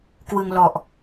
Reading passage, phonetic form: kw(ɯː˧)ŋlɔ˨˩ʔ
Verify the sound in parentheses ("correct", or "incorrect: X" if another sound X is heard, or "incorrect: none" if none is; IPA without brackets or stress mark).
incorrect: ɯ˧